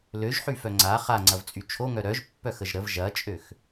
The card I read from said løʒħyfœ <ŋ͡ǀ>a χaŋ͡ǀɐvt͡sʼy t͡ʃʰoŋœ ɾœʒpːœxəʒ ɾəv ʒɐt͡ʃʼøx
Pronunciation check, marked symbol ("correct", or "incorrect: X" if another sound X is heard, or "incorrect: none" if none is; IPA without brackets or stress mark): correct